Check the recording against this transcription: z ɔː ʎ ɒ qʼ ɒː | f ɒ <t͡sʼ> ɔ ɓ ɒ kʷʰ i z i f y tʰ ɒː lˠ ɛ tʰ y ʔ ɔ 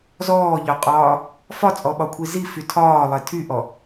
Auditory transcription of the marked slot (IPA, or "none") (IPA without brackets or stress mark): t͡sʼ